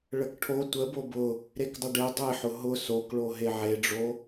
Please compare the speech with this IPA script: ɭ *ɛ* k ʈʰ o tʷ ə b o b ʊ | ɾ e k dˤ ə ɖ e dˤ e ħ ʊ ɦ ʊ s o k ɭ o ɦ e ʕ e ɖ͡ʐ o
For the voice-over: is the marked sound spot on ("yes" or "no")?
no